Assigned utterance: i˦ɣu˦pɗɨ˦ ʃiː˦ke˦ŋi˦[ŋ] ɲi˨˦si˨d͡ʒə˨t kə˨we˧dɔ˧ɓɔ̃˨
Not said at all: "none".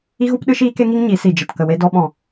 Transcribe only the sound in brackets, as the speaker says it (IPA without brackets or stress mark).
ŋ